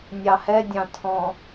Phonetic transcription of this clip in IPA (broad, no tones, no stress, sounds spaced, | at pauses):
nʲ ɑ h ɛ dʲ ɑ̃ tʰ ɔ̃